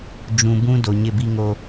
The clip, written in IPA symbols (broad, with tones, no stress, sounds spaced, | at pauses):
d͡ʒ ũ˨ b ũ˦ d o˨ ɲ ɪ˦˨ b i˦ ŋ o˦